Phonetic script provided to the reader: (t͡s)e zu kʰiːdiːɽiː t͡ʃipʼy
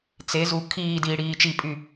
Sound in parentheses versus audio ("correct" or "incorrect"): correct